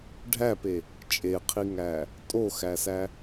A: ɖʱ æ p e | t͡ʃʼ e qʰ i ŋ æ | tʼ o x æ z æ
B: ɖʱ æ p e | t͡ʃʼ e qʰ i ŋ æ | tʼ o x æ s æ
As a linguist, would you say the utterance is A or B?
B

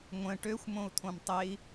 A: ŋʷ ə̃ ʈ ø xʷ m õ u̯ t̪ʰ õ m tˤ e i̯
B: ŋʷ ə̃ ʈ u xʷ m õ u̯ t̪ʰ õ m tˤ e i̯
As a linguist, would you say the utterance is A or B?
A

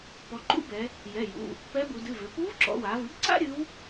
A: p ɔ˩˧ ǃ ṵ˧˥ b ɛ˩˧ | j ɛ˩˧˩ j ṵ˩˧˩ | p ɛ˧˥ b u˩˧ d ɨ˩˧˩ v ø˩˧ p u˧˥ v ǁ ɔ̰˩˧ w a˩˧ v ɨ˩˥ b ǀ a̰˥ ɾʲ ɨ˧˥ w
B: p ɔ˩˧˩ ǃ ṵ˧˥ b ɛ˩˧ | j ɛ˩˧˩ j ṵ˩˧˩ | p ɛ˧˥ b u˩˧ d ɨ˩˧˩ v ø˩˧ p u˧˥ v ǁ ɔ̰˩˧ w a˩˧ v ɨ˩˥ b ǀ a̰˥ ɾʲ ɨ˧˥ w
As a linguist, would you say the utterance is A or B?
A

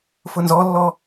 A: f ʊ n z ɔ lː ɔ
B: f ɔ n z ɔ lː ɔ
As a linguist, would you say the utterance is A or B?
A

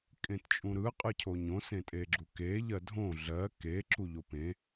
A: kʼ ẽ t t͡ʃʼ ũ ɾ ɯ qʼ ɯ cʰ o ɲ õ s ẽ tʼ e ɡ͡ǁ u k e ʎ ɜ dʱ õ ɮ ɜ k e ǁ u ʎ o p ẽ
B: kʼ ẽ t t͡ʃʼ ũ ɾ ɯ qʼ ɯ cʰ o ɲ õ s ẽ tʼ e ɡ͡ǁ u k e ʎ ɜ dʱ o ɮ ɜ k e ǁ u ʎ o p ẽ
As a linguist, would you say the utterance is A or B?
A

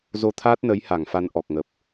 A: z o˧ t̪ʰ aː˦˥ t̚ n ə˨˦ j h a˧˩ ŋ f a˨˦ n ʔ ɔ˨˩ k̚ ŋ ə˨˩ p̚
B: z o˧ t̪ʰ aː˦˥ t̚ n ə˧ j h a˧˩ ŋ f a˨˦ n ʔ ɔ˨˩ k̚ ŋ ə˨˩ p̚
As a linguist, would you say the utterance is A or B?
A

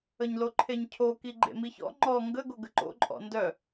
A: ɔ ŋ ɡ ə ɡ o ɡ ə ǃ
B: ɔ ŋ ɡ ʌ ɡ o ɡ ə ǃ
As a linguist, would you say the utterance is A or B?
A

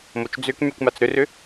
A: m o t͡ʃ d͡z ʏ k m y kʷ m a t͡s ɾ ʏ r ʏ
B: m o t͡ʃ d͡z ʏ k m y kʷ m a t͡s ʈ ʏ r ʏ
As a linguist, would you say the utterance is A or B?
A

